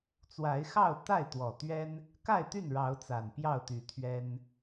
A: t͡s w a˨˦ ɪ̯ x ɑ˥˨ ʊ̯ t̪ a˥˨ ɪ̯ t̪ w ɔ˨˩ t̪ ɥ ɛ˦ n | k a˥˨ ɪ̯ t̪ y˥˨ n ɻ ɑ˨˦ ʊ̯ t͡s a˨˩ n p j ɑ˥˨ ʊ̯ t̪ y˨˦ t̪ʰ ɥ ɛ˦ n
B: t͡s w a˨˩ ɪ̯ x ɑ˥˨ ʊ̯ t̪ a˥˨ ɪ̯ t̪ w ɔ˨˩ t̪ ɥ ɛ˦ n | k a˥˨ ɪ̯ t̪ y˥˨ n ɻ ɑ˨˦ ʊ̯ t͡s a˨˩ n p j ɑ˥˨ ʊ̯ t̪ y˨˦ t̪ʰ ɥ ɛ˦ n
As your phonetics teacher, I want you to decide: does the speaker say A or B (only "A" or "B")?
A